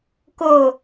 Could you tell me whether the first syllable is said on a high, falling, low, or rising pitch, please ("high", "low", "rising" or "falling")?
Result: falling